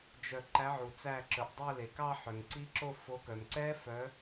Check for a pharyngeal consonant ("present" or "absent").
present